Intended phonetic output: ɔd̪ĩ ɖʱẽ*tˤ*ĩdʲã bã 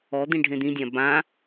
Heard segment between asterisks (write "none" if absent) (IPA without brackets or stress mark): d̪